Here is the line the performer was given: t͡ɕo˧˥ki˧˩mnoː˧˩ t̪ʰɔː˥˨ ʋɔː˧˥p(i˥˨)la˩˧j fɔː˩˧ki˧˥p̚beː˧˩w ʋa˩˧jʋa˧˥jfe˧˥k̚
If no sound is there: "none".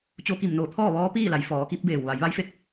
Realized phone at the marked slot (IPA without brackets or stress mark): iː˥˨